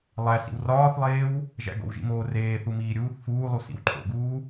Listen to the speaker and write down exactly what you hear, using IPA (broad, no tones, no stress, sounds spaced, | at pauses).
lˠ æ s ḭ w r ɒː θ lˠ eː w | ʒ æ̰ ɡ o̰ w ʒ ḭ m oː r eː θ u m iː ɾʲ uː θ f uː lˠ u s ḭ w ǃʰ o̰ ɡ uː